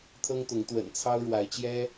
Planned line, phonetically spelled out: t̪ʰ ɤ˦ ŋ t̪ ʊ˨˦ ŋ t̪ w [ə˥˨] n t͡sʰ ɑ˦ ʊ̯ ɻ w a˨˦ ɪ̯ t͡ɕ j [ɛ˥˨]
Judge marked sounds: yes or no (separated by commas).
no, no